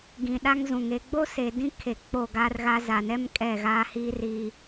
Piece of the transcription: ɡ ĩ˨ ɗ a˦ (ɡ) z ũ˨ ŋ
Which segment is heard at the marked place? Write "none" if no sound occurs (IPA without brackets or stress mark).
ŋ